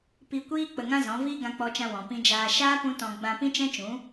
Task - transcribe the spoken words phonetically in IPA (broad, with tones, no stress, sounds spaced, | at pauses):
p i˧ kʷ iː˦ k͡p ə˧ ŋ ã˦ z ɔ̃˨˦ v iː˦ ɡ ã˧ k͡p ɔ˧ t͡ʃ ã˧ w ɔ̃˨ p ĩ˧ d͡ʒ aː˧ ʃ aː˦ p ũ˦ t ɔ̃˧ ɡ͡b ã˧ p ĩ˦ t͡ʃ ɛ̃˦ t͡ʃ ũ˨˦